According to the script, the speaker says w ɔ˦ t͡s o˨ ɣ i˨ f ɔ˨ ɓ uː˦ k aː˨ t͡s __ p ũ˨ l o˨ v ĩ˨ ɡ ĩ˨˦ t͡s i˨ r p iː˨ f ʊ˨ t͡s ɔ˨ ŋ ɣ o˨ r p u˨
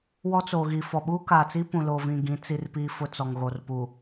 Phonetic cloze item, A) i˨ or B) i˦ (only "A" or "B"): B